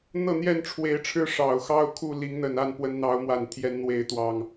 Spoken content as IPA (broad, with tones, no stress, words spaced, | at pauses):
n̪ɤ˥˨n̪jɛ˥˨nʈ͡ʂʰwe˨˦ɪ̯ ʈ͡ʂʰɻ̩˦ ʂɑ˨˩ʊ̯ xɑ˦ʊ̯kʰu˥˨ li˨˦ŋn̪ə˨˩n a˥˨n pwə˨˦nn̪ɑ˨˦ʊ̯mwa˨˩nt̪ʰjɛ˨˦n n̪we˨˦ɪ̯t̪wɑ˨˩ŋ